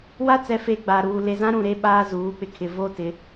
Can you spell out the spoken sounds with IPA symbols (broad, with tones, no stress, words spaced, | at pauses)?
wa˦t͡sɛ˨fe˨ ɡ͡ba˨ɾuː˨ le˨zã˦ɾũ˨ɾe˦ ɓaː˦zuː˨˦k͡pɪ˨kʰɪ˨ vo˦tɪ˨˦